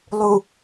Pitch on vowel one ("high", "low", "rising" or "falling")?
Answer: low